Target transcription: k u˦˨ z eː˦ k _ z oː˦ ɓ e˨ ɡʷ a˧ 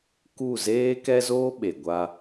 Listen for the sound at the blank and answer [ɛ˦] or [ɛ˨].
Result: ɛ˦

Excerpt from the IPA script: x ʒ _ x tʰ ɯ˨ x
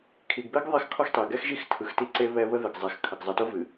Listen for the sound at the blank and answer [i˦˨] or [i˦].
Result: i˦˨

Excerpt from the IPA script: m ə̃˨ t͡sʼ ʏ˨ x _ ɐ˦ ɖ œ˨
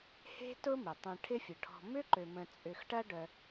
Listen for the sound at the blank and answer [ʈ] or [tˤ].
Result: ʈ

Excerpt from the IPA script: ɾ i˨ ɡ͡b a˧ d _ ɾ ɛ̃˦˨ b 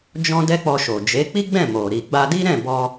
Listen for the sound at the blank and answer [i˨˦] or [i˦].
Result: i˦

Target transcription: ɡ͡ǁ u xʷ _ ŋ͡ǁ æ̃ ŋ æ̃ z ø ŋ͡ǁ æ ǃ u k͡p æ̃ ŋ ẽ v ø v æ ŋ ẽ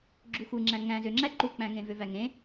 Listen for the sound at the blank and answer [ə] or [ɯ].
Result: ɯ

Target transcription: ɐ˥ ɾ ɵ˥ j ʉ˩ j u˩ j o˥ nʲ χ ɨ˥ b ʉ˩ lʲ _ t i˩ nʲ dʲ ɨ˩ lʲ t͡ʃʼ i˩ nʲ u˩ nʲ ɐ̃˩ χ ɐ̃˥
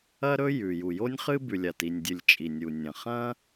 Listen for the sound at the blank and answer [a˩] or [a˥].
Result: a˩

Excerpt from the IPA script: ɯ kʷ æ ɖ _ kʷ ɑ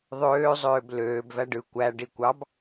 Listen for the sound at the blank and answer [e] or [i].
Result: i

